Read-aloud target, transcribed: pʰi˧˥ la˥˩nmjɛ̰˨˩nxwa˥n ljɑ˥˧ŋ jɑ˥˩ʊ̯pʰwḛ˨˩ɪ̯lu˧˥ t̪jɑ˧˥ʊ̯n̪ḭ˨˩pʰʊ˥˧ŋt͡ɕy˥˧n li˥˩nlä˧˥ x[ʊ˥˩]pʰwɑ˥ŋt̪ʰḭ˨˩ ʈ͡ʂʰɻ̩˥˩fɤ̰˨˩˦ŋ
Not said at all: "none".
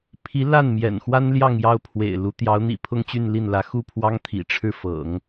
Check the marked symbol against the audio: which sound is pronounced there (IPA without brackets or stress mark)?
u˥˩